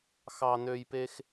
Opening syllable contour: high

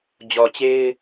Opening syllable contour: low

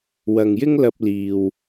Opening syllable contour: low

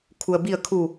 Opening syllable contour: low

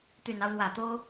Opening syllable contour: low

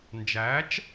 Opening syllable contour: rising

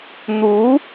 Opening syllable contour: rising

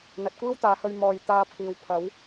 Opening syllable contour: low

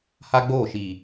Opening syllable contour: high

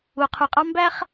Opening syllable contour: low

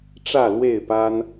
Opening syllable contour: falling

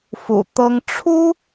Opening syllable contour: low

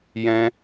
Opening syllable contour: high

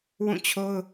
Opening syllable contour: falling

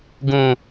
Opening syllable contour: low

